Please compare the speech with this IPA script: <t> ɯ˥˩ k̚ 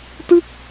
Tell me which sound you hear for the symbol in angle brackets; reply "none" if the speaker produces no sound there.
t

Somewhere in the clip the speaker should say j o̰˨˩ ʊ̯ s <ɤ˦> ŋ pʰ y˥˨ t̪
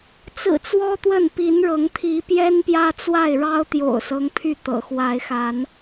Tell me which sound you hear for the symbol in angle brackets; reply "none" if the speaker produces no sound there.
ɤ˦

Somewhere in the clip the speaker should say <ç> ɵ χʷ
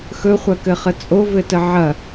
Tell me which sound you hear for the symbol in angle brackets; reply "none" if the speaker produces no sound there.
x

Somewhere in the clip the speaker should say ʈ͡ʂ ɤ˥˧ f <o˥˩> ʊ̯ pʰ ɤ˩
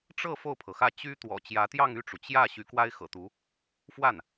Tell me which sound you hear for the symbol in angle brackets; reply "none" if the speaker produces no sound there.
o˥˩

